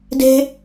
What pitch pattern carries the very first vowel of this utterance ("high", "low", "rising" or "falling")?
high